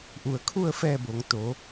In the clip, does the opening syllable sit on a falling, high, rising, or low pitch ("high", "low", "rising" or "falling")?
low